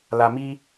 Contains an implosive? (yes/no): no